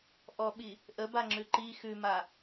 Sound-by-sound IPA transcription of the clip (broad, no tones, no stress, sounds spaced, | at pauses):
ʔ ɔ ɓ i | ʔ ə b a ŋ͡ǁ ʉ ǃ i x ʉ m a